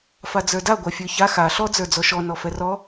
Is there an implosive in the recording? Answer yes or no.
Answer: no